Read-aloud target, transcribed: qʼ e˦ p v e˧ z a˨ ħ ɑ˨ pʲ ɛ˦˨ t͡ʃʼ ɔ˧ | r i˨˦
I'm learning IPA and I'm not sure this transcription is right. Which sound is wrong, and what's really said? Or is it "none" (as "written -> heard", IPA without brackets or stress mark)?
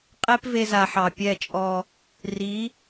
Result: none